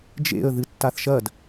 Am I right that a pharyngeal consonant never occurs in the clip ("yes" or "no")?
yes